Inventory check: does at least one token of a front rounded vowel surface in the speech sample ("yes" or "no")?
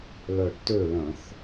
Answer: yes